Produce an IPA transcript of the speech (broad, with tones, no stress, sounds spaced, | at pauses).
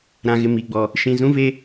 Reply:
ɾ ã˨ ɣ ɪ˨ m i˨ ɡ͡b ɔ˨ | ʃ ĩ˨ z ũ˦ v e˦